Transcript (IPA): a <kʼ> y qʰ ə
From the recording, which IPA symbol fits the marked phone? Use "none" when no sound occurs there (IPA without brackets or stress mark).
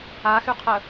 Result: x